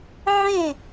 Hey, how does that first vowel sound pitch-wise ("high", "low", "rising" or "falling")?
falling